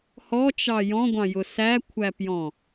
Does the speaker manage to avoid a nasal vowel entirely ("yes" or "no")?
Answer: no